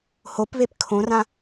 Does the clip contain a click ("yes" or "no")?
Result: no